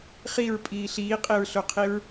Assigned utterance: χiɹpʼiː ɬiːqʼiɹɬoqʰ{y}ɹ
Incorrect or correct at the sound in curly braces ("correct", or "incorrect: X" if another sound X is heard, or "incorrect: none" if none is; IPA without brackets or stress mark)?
incorrect: i